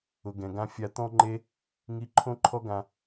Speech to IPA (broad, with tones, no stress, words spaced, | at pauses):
ʊ˨ɡɛ̃˨ ɡã˧fʲa˧t̪ɔ̃˦ŋ͡ǃe˦ | ŋi˧ǃʰõ˦ǃʰɔ˦ɡã˧